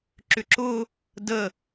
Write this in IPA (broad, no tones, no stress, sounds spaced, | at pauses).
ǁ ʏ ǁ ʊ | d ə